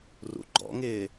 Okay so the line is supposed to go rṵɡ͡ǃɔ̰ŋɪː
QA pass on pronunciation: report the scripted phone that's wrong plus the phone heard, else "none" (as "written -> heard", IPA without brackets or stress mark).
none